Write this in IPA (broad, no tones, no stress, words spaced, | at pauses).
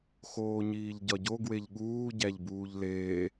xoːɲiːʎɟɒɟo ɡweʎɠuː ɟæʎbuːʎleː